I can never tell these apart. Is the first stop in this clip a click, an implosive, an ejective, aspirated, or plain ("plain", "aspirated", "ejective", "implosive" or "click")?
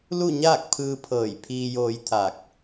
plain